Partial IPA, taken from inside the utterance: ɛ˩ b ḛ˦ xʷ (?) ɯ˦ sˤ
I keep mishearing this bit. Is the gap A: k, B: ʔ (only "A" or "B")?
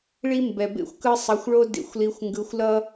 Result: A